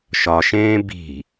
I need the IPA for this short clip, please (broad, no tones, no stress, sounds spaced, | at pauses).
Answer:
ʃ ɒ ʃ ẽː b i̤